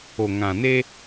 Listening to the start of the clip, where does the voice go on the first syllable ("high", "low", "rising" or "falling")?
low